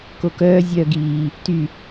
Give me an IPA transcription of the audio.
k o k œː zʲ œː ɡ iː | t y

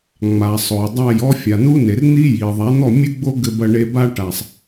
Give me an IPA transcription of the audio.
ŋ͡m a˨ sˤ o˨ j dˤ a˦˨ j ɔ˦ fʲ a˨ n u˦ n e˨ r n̪ i˦ j i˨ ðˤ a˨˦ n̪ ɔ˦˨ mʲ ɨ˦ ɡ͡b o˦ ɡ ɘ˧ b ɐ˧ ɳ e˧ b a˧ ʈ a˨ sˤ

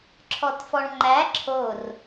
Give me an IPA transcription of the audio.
ǁʰ ɔ t f ɔ ɳ ŋ͡ǃ æ ǁʰ o r

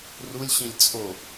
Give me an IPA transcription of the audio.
r u lʲ ɕ ĩ lʲ t͡sʼ o

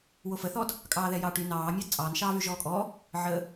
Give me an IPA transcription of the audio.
w o f ə θ ɔ d | kʼ ɑː ð ɛ j ɑː ʈ y n ɑː mʲ ɑ d t͡sʼ ɑː n ʃ ɑː v y ʒ ɔː kʼ ɔ | ʕ ə

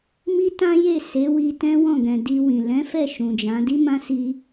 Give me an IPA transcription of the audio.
m i˦ t ã˦ j e˦˨ s e˨˦ w i˧ t ɛ̃˦ w ɔ̃˦˨ ɡ ɛ̃˨ d i˧ w ĩ˨ l ɛ̃˨˦ f ɛ˦˨ ʃ ũ˨ d͡ʒ ã˨˦ d i˦ m ã˦ s i˧

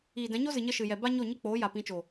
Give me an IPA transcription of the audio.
iː˨ d ɛ̃˨˦ ɲ o˦ z ɨ˨ ɲ ə˧ ʃ ɨ˨ j ɛ˨ b a˦ ɲ o˦˨ ɲ ə˦ k͡p oː˨˦ j a˨ p ĩ˨˦ t͡ʃ o˨

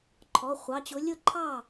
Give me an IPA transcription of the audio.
ǃʰ ɔ˩˧˩ χʷ ɑ˩˧˩ t͡ɕ ʊ˨˦ lʲ ʊ˥˩ ǃʰ ɑ˥˩

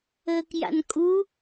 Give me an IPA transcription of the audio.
əː k j a̰ n kʼ u

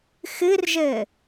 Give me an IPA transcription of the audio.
x ɨ r ʒ ɘ

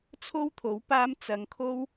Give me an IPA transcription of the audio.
t͡sʰ o˥ w t̪ʰ o˨˥ w p aː˥ m t͡s ɐ˨˧ ŋ kʰ o˥ w

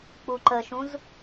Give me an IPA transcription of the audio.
k͡p u ǃ ə ʃ ũ z

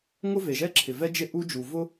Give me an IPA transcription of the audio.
ŋ ʊ˥ v e˩ ʒ ɛ˥ ǁʰ ɪ˩ v ɛ˥ d͡ʒ ɪ˥ ʔ u˥ d͡ʒ u˩ v ʊ˥

